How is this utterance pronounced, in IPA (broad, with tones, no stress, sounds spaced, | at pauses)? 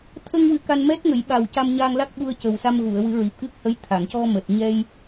t̪ʰ ə˧ ŋ w ɨ˨˩˦ k a˧ n m ɛ˦˥ t̚ ŋ ə˨˩˦ j ɓ a˨˩ w c a˧ m ɲ a˧ ŋ l a˦˥ k̚ ɓ u˧ ə̯ c ə˨˩ w s a˧ m ɣ u˨˩˨ ə̯ w ɨ˨˩˦ ɹ i˨˩ p̚ k ɨ˦˥ k̚ h ə˧˥ j t̪ʰ a˨˩˨ ŋ c ɔ˧ m əː˨˩ t̚ ɲ ɛ˧ j